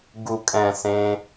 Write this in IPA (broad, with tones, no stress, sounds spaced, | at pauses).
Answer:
ɡ u˧ kʼ ɛ̃˧ s ẽ˦